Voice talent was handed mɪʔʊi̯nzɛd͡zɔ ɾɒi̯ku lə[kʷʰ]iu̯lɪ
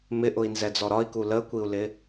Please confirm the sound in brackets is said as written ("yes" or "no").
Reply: no